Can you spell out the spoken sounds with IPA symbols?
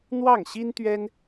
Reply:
n̪wɑ˥˩ŋɕi˥nt̪ɥɛ˥n

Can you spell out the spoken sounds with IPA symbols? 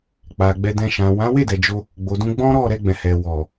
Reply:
k͡pa˨ ɡ͡bɛ˧dɛ̃˧ ʃã˨wã˨˦ we˦˨dɛ˨d͡ʒo˧ | ɡ͡bo˨dũ˧ ɡ͡bɔ̃˦ ɾɔ˦˨ ɾɛ˧ɡ͡bɛ̃˨hɛ˨ wɔ˨

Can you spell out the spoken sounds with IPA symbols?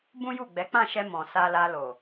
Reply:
bũ˦ju˦˨ɡ͡bɛ˨˦ k͡pã˦˨ʃɛ˧ mɔ̃˨sa˧la˧ lo˨

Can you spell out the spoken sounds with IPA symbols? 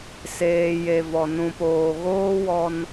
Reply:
seː˨je˨vɔ˨ nũ˨poː˨ ɣoː˦wɔ˧n

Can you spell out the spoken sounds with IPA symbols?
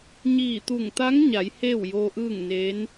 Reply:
ɲiː˧˩t̪u˧˩ŋt̪a˧˥ŋɲa˩˧j heː˥˨wjoː˧ʔɯː˥˨ŋneː˧˥n

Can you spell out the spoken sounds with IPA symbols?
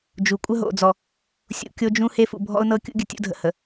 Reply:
d͡ʒu˨ kʷʼə˦ɦo̰˨d͡zɔ˨ | sʲṵ˨kʲo˦d͡ʒũ˦ he˦fṵ˨ bʱɔ̰˦ʊ̯nɤ˦kʲṵ˦ɡʲə˨ tʲṵ˦dʱə̰˨hə˨

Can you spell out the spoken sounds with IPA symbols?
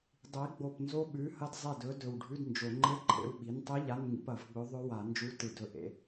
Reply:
dˤi˩˥ɡ͡bo˧˩pnzo˧˥ ɓʉ˩˥hɐ˧dzˤe˧˩dɵ˩˥ dɵ˧˩wɖʱʉ˧˥˧dnd͡ʒo˨˩˦ ŋ͡ǃe˧˥˧ǃʰḛ˧wɓi˩˥ntˤi˧˥ ʎa˧˥˧nŋḭ˧p ɐ˨˩˦vɡ͡bɵ˧˥ ðˤɵ˧˥wa˨˩˦nd͡ʒu˧˥˧ tɨ˧˩dɵ˧ ʔḛ˧

